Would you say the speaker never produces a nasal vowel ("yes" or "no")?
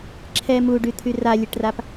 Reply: yes